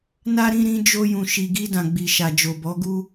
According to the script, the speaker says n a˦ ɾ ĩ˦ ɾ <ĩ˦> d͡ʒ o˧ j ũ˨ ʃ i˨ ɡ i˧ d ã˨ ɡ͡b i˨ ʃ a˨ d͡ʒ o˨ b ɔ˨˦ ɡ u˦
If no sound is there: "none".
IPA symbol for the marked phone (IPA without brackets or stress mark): ĩ˦